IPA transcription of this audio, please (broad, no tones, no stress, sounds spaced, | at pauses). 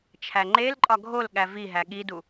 t͡ʃʰ æ ŋ͡ǃ e l ǃʼ ɒ ɡʱ o l ɠ æ v i ɦ æ ɠ i d u